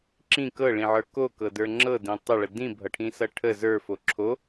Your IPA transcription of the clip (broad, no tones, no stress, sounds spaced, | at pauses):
ǁ ĩ k ɤ ɭ ĩ ʕ ə˞ k o k ɤ d ə˞ ŋ͡ǁ ɤ d ĩ tˤ ə ɭ ə d ĩ bʱ ʌ ʈʰ ĩ s ʌ ʈʰ ə z ə˞ f o ǁʰ o